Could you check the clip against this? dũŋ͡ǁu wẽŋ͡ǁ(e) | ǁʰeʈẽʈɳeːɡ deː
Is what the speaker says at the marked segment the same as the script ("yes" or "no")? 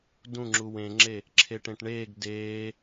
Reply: yes